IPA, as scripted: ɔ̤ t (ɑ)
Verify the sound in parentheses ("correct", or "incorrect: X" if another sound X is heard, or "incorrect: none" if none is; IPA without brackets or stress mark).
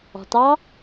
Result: correct